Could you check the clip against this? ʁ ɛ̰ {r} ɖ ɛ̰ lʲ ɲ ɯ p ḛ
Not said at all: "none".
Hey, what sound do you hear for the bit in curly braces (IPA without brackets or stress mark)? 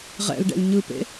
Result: l